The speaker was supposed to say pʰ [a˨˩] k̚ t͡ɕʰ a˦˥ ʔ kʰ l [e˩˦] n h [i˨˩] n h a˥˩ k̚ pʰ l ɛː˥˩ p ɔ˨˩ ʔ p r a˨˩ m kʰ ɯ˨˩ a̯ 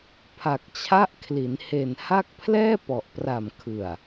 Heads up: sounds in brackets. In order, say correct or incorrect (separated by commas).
correct, incorrect, incorrect